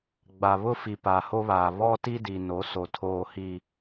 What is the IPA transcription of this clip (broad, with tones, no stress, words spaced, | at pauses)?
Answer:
ɡ͡ba˨βʊ˦fi˨ pa˨ho˦βaː˨ βɔ˦ti˦di˨ no˨˦so˨tʰoː˨hi˨